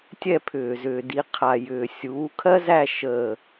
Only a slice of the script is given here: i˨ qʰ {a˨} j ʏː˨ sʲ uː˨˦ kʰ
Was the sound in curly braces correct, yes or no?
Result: yes